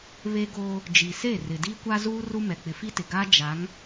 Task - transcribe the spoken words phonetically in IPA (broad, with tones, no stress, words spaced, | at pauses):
βe˦ɡoː˦ | d͡ʒi˨se˦˨ rɪ˨diː˦kʷa˦zuː˦ ru˦mɛ˨ k͡pɪ˨fi˦tɪ˨ɡaː˦ d͡ʒa˨˦ŋ